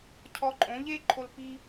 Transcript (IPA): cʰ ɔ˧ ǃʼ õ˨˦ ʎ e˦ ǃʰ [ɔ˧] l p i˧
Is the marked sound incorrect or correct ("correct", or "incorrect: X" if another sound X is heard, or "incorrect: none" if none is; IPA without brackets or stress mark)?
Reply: incorrect: o˧